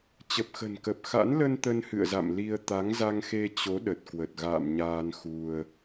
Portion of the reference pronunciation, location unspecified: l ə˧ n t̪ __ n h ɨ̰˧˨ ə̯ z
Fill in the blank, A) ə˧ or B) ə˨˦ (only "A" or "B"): A